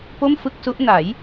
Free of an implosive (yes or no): yes